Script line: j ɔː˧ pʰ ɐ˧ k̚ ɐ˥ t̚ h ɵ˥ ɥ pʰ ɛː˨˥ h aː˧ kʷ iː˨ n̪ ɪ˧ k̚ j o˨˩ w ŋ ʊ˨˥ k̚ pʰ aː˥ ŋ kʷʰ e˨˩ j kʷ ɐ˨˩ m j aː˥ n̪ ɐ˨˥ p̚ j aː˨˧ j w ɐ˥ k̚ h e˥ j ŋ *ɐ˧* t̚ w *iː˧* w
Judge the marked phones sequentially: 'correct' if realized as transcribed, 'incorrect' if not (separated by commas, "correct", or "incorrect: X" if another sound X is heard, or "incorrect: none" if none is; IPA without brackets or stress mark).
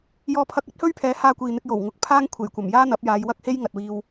incorrect: ɐ˨, correct